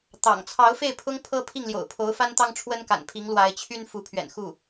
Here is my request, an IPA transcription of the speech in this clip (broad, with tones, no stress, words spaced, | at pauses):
t̪ɑ̰˨˩ŋ t͡sʰɑ˧˥ʊ̯fe˥˩ɪ̯pʰʊ˥ŋ pʰɤ˥ pʰi˥˩ŋljo̰˨˩ʊ̯pʰo˧˥ʊ̯ fa˥nt̪ɑ˥ŋʈ͡ʂʰwə˥nka̰˨˩n pʰi˧˥ŋlwa˧˥ɪ̯t͡ɕʰy˥n fu˧˥pʰɥɛ̰˨˩n xu˥˩